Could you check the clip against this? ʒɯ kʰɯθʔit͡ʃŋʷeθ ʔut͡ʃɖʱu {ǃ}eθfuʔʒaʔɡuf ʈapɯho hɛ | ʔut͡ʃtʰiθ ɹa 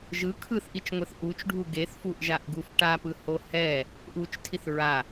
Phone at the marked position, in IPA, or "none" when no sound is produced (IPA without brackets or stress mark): ɡ